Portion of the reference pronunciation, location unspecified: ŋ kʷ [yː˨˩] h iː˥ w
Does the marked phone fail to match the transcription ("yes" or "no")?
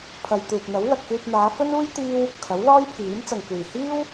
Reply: yes